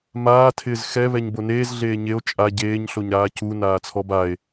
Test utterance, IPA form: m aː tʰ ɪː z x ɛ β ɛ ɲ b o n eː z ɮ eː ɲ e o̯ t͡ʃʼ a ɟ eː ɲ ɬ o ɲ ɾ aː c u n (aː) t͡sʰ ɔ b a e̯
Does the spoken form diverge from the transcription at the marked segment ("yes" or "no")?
no